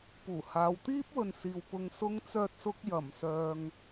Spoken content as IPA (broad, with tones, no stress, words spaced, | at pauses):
puː˨˩haː˨˧w t̪iː˥p̚wɵ˨n siː˨wpʊ˧ŋ sʊ˥ŋt͡sœː˥t̚sʊ˥k̚ jɐ˨˩msœː˨ŋ